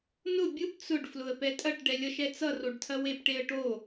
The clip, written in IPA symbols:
nʊ bʲʊp t͡sʊɖ flʊə̯pɛtʼɐʈ ɖɛlʲʌʃɛt͡sʌ roɖtʰɐwep ʈeə̯ʈo

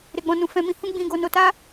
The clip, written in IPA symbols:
ɾe˧ɡ͡bɔ̃˧nũ˧ fɛ̃˧mĩ˧hũ˦ ɡ͡bĩ˧ɡo˧ no˧ta˦

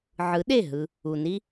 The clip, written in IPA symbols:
ʕɯ˨˦ɗe˦˨ ɦɯ˧ | u˨ni˦

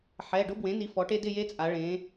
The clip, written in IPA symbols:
ħɛ˩˧˩ɖʊ˦˥bwẽ˩˥ni˩˥ fɔ˩˥ʈe˦˥ dɪ˥˧ je˦˥t͡sʼa˩˧ ɭẽ˩˧

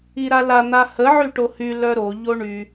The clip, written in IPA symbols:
iɾala n̪ahə ʕyʈohy lœɾo ʎoɳy

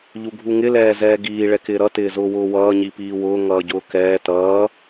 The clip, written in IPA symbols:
ʎuɡʱuŋɪ lɛːzɛːɡiː ɭɛkɪːɾʌ tɪːzʊːwʊːwʌː ɲipiːwʊː ŋʌːɟʊːkɛː tʌː

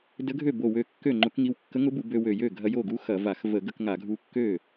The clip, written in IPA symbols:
də˧˥ɡʱø˥˩bo˧˩ wø˧kːø˥˩ŋ͡ǃʊ˧˥kŋi˧w kːə˧˥ŋʊ˧˥bu˧˩˧ bø˧wø˧˩jø˥˩ ɡʱɐ˧jo˥˩ɡu˧˥ xɐ˧˩˧va˧˩˧x və˧˩˧ɡə˧k ŋa˧˩˧ɡʱu˧kːø˥˩

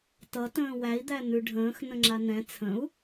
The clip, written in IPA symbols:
tʌ tə̃ːwæi̯ d̪æn̪ʉɖʱə̃ːx nə̃ŋ͡ǁanɛ̃ t͡sʰə̃u̯

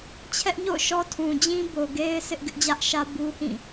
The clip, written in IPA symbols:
t͡ɕʰɛ˦ʔɲo̰˦˨ʊ̯ʃɔ˦ tʰũ˨d͡ʑĩ˦bo˨ɡe˦ɪ̯ sɪ˦ʔ ɡɪ˦ʔd͡ʑä˦ʔʃä˦ bu˦hĩ˦˨

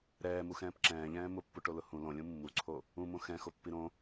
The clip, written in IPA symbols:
ɾɛːmuxɛ̃ːp ǁɛ̃ːʎɛ̃ː mʊpːuʈolʊ hũ lõlʲũ mːuǀʰo | ũmõ xɛ̃xopːi ɾõ

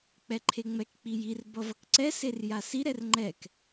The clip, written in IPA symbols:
k͡pɛǃʰeŋ͡mɛk k͡pijir bʌvʌkǀɛ serjasi ɾɛrŋ͡ǃɛk

